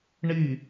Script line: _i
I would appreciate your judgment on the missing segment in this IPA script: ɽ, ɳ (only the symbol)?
ɳ